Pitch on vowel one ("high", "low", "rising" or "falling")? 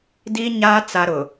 high